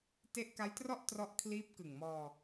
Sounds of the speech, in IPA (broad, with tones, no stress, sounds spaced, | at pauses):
t e˦˥ ʔ k a˦˥ j t r ɔ˥˩ ʔ t r ɔ˦˥ ʔ kʰ l iː˦˥ p̚ k ɯ˨˩ ŋ m ɔː˧